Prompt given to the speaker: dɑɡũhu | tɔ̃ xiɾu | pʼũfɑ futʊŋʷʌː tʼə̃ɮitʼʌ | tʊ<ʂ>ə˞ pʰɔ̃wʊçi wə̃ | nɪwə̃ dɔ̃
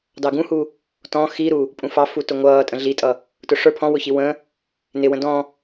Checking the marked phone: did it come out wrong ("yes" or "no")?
no